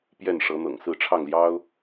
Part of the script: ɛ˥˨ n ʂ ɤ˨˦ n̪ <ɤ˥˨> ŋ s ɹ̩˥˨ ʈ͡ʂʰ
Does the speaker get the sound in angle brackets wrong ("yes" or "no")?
yes